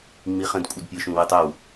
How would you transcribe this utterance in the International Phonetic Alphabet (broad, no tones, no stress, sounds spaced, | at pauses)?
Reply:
ŋ͡m i χ ə̃ d kʷʼ ɐ d pʲ ə ʃ ũ w ɪ tˤ ə w